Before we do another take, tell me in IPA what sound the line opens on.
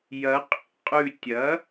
j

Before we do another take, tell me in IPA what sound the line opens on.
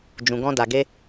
d͡ʒ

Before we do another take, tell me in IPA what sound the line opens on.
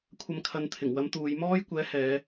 kʷʰ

